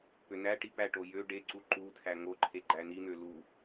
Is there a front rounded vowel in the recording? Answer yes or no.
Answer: yes